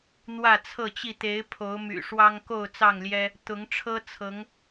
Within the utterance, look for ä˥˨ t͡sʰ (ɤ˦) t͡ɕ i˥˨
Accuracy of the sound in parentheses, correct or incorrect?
incorrect